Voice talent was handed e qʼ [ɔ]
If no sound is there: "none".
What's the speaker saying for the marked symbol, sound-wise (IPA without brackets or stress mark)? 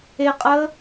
ə